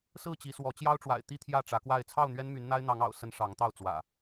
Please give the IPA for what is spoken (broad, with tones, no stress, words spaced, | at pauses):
sɹ̩˥˨t͡ɕi˨˦swɔ˨˦ t͡ɕjɑ˦ʊ̯ʈ͡ʂwa̰˨˩ɪ̯ t̪i˥˨t̪ʰjä˥˨ʈ͡ʂä˨˦kwa˥˨ɪ̯ t͡sʰɑ˥˨ʊ̯n̪ɥɛ˦nmy˨˦n n̪a˦ɪ̯n̪ɑ˨˦ŋɑ̰˨˩ʊ̯sə˨˦n ʂɑ˨˦ŋt̪ɑ˥˨ʊ̯t͡swä̰˨˩